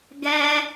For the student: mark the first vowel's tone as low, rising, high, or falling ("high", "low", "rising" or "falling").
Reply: high